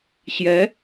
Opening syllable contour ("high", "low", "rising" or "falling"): rising